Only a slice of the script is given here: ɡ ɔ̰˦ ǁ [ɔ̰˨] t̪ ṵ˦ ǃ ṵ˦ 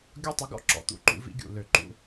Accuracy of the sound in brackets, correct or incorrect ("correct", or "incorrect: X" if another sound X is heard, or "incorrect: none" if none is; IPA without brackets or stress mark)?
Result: correct